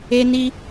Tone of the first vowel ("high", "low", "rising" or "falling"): high